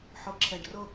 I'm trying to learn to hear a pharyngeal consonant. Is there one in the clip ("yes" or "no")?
yes